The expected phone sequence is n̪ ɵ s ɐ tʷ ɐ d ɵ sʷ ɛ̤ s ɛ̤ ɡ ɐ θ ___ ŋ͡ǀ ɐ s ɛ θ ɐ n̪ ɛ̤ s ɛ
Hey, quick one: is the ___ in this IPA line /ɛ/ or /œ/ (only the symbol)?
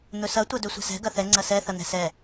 ɛ